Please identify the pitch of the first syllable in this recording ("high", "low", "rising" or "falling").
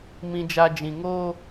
low